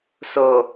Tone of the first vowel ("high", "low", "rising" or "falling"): low